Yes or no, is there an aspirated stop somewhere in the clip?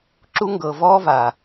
no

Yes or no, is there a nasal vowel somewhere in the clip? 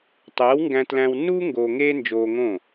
yes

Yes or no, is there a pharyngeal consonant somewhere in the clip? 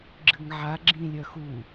yes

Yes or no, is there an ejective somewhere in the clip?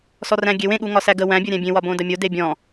no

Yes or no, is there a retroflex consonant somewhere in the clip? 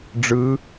yes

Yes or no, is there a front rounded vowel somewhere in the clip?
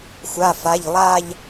no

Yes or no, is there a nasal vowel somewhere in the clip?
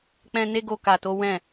yes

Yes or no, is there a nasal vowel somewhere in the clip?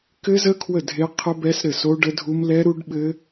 no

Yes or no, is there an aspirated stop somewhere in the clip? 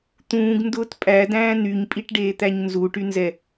no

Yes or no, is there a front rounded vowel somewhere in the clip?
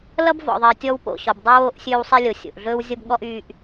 yes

